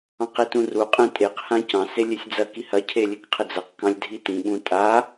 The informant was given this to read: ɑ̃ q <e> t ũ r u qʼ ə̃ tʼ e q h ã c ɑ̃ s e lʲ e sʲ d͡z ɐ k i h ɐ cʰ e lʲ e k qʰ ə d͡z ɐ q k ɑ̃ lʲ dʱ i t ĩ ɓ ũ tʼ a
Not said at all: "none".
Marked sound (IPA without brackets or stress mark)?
e